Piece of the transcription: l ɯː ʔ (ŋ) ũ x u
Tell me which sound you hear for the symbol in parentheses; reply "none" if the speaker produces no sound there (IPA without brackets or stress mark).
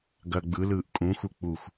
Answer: kʼ